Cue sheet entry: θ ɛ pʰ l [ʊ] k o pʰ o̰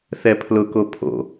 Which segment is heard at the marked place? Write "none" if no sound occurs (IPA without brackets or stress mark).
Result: ʊ